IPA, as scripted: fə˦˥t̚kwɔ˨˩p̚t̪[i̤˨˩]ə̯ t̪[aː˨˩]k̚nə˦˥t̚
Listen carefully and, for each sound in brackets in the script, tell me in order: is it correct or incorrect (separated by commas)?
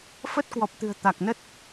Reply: incorrect, incorrect